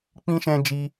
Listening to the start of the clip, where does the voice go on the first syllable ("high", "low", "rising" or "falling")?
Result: high